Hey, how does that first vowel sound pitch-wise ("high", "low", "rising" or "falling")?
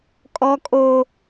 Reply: high